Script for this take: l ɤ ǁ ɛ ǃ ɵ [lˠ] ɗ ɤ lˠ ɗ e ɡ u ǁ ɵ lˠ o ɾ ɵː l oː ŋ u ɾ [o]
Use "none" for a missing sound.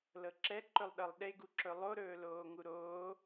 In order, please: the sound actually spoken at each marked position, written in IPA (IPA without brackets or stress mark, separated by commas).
lˠ, oː